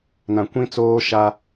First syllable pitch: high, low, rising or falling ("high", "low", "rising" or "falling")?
low